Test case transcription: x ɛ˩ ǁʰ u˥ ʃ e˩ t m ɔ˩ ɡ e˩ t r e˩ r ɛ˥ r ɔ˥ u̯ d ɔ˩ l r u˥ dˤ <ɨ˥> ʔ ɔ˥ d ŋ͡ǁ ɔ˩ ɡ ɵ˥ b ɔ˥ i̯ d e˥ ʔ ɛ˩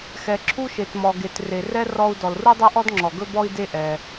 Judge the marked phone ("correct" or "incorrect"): incorrect